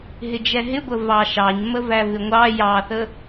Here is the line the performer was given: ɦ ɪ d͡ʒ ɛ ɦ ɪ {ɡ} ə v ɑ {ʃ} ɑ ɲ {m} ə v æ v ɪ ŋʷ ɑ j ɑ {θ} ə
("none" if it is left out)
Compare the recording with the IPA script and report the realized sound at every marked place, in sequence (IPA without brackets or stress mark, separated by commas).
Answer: ɡʷ, ʃ, m, θ